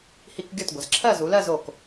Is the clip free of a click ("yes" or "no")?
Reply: no